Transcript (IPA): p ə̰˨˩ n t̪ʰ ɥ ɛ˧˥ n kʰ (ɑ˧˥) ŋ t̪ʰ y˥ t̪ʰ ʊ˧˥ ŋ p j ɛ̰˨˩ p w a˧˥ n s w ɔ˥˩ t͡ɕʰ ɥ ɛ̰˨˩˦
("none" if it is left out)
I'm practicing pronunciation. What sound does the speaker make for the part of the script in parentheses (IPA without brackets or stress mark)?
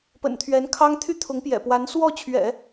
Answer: ɑ˥